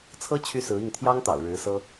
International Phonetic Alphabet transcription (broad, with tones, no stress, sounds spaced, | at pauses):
t͡sʰ ɤ˥ t͡ɕʰ y˥ s ɹ̩˧˥ i˥˩ ŋ t̪ʰ j ɑ˥ ŋ t̪ ɑ̰˨˩ ʊ̯ ɻ ɻ̩˧˥ s ɤ˥